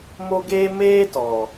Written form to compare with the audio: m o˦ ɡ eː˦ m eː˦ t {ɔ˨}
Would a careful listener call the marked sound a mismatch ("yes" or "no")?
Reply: no